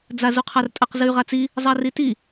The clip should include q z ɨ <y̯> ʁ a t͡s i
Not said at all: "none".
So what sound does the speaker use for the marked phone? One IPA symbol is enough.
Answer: y̯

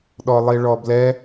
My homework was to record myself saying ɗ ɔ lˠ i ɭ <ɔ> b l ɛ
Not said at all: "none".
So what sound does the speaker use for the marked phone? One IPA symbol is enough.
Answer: ɔ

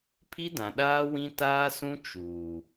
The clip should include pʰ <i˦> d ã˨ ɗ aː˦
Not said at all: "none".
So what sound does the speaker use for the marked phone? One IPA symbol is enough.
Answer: i˦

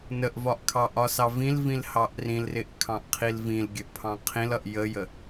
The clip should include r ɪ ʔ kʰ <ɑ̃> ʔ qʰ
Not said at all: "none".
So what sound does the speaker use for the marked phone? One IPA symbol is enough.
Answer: ɑ̃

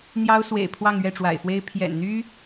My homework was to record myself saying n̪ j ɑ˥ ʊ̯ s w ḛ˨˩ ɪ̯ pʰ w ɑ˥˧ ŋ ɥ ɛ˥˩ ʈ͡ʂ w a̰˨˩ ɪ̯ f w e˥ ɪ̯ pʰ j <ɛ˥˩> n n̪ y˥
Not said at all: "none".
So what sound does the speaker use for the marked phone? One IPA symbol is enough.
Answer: ɛ̰˨˩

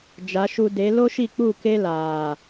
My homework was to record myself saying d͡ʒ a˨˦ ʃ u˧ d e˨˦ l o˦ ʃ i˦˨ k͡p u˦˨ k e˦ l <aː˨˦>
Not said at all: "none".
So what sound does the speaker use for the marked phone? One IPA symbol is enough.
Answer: aː˨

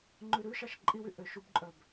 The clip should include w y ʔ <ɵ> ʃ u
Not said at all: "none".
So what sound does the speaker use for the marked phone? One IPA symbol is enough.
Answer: ø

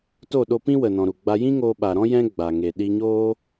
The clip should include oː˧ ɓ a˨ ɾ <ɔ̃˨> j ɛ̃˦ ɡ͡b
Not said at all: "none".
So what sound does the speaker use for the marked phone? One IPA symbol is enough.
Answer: ɔ̃˦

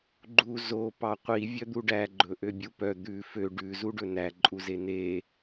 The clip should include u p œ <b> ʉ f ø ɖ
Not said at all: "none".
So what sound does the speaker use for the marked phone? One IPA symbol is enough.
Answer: d̪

